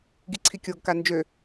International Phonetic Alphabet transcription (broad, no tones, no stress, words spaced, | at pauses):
ɡiǀʰikʲoɡka nd͡ʒø